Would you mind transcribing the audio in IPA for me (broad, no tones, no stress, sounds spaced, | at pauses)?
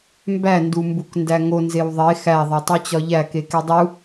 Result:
m b æ n d u m b u k n d æ ŋ o n z e w ðˤ e x æ ðˤ e tˤ u t͡ɕ ɒ ʎ æ k e k e dˤ u